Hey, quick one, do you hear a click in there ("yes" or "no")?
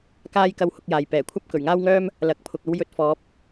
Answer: no